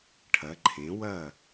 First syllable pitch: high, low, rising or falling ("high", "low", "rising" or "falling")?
rising